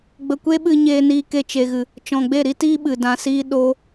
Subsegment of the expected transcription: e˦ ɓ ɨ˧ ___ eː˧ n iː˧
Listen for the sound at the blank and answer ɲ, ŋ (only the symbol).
ɲ